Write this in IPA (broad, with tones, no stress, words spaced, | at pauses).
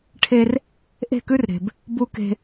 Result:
ʈʰe˦r | ʔe̤˦˨kʉ˦rɾe̤˨b | bu˦ke̤˦